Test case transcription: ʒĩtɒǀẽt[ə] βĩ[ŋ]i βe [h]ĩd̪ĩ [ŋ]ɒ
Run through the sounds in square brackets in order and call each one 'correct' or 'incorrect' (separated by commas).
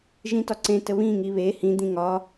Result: correct, correct, correct, correct